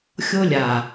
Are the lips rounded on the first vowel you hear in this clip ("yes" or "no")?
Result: yes